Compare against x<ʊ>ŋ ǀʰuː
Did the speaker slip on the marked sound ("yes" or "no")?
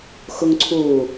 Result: no